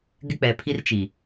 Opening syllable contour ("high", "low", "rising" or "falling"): high